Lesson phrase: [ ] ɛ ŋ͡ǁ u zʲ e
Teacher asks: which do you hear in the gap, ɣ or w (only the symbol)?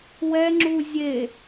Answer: w